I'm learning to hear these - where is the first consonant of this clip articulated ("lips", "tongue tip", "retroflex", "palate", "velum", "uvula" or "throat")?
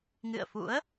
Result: velum